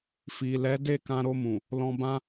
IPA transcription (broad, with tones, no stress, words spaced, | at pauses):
fi˨lɛ˨˦de˦˨ kã˧ɾo˧mũ˨ | lɔ̃˧bã˦